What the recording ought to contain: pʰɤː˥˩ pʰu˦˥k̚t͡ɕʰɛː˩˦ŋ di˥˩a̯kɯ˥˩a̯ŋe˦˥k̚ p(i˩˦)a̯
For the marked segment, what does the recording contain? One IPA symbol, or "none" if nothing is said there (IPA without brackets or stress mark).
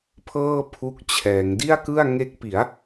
i˩˦